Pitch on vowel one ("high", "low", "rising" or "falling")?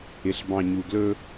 low